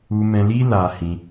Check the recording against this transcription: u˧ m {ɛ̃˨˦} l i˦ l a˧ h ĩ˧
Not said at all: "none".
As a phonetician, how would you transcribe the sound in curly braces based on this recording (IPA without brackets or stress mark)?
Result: ɛ̃˧